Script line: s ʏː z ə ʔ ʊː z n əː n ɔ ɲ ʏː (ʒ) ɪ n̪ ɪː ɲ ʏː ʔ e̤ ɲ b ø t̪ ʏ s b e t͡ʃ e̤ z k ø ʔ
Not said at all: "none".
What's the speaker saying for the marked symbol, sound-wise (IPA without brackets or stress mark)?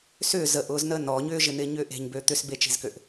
ʒ